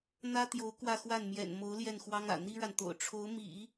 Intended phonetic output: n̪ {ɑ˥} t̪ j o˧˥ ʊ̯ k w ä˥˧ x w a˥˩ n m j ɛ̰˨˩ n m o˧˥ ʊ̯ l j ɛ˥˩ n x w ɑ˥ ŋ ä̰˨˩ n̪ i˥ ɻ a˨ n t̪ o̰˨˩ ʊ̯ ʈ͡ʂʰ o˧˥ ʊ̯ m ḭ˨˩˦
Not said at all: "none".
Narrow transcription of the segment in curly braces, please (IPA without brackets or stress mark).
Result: ä˥